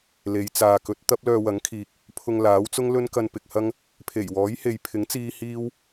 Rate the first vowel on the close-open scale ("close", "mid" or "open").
mid